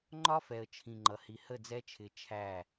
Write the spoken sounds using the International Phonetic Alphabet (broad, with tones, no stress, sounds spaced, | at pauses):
ŋ͡ǃ ɒ˦ f ɛ˨ ə̯ t͡ʃʰ ĩ˨ ŋ͡ǃ ʌ˨ h i˨ h ə˦˨ d͡z ɛ˦ t͡ʃʰ ɪ˨˦ t͡ʃʰ æ˦˨